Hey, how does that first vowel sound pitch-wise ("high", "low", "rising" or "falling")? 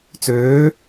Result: rising